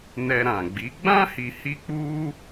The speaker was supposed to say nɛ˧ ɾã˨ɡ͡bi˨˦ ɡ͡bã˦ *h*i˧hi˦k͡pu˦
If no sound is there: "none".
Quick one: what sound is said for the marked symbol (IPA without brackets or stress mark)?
h